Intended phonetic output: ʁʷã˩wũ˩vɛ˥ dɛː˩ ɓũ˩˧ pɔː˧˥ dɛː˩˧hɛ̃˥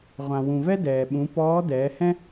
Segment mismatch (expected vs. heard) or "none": none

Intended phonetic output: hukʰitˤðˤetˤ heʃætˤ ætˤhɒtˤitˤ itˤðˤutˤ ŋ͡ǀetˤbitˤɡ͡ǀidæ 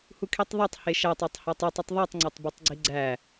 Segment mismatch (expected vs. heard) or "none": d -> ɡ͡ǀ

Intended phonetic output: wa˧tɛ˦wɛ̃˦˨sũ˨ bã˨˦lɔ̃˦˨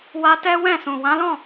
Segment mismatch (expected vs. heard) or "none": b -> w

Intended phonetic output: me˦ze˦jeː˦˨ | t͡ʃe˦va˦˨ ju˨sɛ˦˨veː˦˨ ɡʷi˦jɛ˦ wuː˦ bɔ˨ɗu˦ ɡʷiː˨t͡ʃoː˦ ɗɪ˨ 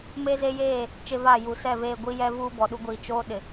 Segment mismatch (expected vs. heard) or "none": w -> v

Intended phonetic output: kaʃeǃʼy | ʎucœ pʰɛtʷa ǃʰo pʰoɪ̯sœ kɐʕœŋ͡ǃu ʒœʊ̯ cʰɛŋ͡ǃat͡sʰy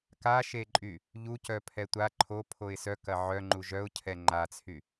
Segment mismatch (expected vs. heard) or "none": none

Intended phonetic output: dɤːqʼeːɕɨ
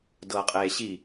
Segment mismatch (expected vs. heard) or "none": ɨ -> i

